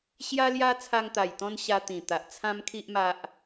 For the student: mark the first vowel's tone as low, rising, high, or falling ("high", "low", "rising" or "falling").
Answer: high